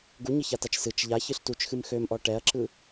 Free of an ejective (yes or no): yes